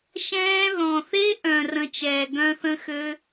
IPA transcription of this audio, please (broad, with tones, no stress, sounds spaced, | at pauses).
ʃ ɛ̃ː˦ ð ɔ̃˨ θ e˦ ʔ œ̃˨ r ə̃˧ t͡ʃ ɛː˨ ɡ œ̃˦ θ ə̃˦ x ø˦